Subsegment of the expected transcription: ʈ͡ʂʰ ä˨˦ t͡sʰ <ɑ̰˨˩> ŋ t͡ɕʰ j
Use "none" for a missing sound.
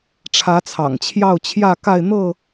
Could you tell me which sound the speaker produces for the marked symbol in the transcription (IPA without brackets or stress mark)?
ɑ̰˨˩